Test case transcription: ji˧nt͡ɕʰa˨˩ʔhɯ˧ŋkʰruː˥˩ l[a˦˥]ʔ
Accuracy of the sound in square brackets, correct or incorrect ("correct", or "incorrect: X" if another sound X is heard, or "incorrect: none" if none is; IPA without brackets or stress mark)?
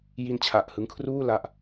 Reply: correct